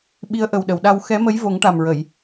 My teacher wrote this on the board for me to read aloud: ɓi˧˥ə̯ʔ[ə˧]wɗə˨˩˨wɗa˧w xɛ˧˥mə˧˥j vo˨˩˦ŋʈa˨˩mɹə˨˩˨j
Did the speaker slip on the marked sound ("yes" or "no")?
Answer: yes